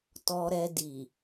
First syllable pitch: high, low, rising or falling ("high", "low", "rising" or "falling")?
low